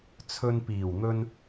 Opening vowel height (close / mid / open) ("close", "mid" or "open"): mid